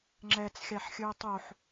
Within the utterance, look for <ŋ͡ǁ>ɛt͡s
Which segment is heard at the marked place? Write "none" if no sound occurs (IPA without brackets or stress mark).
ŋ͡ǁ